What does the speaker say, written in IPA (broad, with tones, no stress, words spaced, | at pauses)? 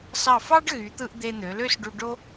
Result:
sɑ˧˩fɑ˥ɖ ɣy˩˧t̪ɯ˧ʔ d̪e˧n̪ø˩˧lø˥˧sɖu˧ ɖo˥